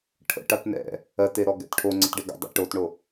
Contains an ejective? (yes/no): no